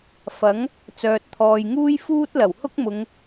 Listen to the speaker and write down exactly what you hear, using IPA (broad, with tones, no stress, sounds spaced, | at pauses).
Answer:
f ɐ˨˥ ŋ | t͡s œː˨ t̚ t̪ʰ ɔː˨ j ŋ uː˥ j f uː˥ t̚ l ɐ˨˩ w h ʊ˥ k̚ m ʊ˨˧ ŋ